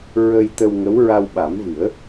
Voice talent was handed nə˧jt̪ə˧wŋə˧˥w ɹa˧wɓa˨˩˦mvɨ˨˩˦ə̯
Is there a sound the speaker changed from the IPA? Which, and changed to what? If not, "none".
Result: n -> ɹ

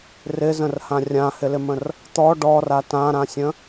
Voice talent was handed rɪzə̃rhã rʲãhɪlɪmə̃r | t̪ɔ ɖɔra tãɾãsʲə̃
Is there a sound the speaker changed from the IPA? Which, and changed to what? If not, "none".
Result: none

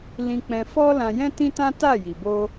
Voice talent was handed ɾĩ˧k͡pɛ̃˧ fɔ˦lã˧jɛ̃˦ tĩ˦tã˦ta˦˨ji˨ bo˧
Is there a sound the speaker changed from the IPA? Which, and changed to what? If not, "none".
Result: ɾ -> l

